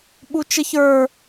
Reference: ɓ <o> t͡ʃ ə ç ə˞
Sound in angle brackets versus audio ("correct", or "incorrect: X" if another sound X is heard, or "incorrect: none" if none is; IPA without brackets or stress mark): incorrect: u